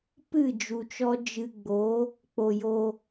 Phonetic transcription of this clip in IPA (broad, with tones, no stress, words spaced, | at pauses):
pɨ˦˨d͡ʒu˨t͡ʃɔ˧ d͡ʒɨ˧ ɡ͡bo˨˦ | k͡po˨jo˧